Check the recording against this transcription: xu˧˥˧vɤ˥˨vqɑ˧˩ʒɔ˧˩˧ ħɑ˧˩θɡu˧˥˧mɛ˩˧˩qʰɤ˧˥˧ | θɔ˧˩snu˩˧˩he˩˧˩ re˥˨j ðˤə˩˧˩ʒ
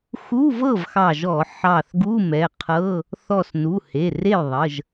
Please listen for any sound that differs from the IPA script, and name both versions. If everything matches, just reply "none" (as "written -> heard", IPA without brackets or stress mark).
q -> x